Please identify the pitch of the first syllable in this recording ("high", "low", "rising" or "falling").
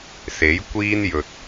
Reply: rising